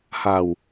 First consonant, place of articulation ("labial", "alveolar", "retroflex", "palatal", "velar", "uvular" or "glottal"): glottal